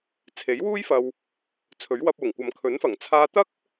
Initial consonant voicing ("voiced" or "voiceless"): voiceless